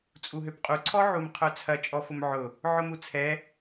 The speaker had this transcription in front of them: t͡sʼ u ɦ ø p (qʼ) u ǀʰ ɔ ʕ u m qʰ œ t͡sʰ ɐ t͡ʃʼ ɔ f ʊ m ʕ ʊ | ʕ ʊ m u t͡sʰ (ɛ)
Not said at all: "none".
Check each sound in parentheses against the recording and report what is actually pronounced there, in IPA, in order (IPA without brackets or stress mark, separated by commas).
qʼ, ɛ